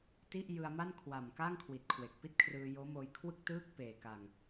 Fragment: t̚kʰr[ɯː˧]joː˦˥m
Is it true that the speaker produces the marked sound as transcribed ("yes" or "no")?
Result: yes